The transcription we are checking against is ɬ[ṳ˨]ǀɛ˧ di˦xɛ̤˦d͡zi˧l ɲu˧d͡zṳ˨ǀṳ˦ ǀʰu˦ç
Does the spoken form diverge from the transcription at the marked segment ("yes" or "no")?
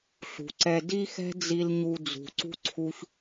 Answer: no